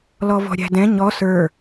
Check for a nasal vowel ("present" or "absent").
present